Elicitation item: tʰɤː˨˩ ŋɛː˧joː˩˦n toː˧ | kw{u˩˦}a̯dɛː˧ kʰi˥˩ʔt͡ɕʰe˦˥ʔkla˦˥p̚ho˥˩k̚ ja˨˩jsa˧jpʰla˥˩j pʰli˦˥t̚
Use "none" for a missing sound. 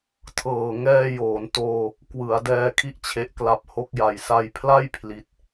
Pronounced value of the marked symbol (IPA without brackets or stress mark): ɯ˩˦